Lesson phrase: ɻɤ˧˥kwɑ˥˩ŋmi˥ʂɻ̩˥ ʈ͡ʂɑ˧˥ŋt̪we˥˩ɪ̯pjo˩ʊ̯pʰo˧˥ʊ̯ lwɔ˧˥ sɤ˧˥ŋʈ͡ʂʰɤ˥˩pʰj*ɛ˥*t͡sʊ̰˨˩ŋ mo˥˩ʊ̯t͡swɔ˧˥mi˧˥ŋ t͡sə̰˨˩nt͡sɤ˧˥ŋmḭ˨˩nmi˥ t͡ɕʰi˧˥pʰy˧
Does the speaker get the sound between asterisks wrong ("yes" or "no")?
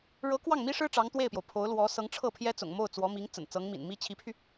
no